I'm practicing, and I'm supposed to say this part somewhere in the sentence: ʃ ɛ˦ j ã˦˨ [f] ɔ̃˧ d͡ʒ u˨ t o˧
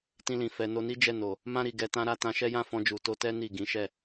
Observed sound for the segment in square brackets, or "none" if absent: f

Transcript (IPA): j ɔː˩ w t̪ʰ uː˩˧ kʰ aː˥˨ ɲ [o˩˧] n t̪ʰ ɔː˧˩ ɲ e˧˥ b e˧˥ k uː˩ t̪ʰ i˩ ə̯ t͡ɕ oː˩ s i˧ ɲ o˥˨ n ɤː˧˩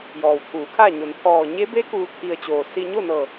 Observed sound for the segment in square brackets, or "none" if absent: o˩˧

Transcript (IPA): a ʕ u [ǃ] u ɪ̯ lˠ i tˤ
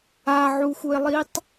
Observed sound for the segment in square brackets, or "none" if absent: x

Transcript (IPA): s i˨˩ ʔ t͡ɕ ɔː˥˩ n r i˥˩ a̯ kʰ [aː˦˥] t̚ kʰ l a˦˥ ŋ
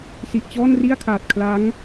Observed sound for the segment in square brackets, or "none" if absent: aː˨˩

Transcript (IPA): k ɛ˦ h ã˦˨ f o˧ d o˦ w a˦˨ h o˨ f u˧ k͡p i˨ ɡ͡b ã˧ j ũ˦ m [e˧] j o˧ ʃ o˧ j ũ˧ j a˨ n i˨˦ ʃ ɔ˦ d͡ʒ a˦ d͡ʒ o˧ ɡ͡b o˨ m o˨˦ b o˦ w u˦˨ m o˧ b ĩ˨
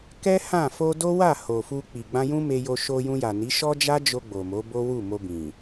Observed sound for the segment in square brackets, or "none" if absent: e˧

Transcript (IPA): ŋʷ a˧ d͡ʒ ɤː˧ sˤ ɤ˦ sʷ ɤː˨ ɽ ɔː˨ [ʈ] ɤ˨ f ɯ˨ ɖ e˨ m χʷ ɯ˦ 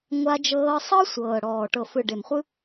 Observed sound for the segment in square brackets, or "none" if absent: ʈ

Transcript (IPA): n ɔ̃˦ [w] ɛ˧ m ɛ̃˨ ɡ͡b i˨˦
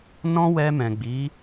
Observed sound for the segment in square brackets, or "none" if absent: w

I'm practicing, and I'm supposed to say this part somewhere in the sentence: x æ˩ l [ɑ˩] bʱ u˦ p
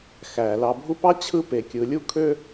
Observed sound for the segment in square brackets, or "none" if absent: ɑ˨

